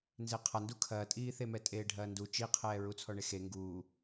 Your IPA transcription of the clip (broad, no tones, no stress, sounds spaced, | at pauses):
n z e qʰ a n d u kʰ ɐː tʼ iː θ e m ɛ tʼ eː ɖʱ ɐː n d u t͡ʃ i qʰ ɛː ɹ u t͡sʰ ɔ ɳ e x e ŋ ɡ uː